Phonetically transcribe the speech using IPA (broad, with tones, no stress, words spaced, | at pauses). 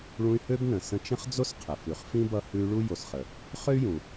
ɭũ˦y̯hø˥bnə̃˩ sə̃˦t͡ʃə̃˥χd͡zo˥s qʰə˩fʉ˨χ fĩ˥bʌ˦hʉ˦y̯ɭu˥ jo˨sχə˩ | χø˥y̯jũ˨